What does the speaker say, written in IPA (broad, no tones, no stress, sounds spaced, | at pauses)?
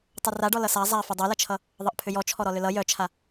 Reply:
tˤ ʌ r a ɖ ɔ l ʌ s a zˤ a f ʏ dˤ œ l ʌ t͡ʃʰ ʌ | ðˤ ʌ ʔ pʰ ʏ j ɔ t͡ʃʰ ɔ ɾ ɔ l ʏ l ʌ j œ t͡ʃʰ a